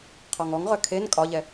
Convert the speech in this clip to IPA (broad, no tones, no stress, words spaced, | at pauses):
qʰɔŋɔŋʁœ kʰen kʼɒʎɛ